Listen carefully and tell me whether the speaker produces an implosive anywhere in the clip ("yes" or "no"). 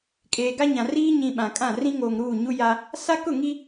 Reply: yes